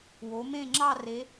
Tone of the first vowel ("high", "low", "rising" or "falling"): rising